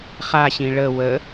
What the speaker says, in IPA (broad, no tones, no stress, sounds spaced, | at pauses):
χ a ɕ ĩ ɭ ə w ə